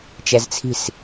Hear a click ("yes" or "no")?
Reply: no